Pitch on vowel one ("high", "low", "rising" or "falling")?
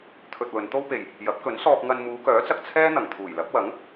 low